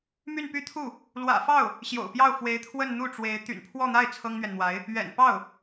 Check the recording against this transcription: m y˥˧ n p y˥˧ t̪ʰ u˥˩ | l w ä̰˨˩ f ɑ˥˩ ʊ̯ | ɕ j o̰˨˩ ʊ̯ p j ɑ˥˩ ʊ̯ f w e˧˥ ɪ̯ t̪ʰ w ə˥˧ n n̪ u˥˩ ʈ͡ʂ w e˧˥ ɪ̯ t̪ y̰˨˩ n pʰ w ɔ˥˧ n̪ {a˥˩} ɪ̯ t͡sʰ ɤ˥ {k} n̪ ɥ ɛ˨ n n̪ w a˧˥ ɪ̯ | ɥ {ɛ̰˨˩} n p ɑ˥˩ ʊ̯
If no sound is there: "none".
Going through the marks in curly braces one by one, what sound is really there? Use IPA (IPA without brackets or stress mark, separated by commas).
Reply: a˥˩, ŋ, ɛ̰˨˩